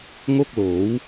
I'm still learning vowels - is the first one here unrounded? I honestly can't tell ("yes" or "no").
no